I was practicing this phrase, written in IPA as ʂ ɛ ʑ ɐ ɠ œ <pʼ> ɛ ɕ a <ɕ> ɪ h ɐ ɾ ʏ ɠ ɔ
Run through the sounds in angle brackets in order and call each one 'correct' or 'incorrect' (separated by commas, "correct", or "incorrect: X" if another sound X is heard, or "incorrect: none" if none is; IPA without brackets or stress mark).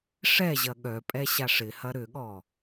correct, incorrect: ʂ